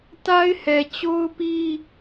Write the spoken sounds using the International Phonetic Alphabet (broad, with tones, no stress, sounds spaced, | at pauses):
t a˦ ɪ̯ h ɛ˨ t͡ɕ o˦ ʊ̯ p i˦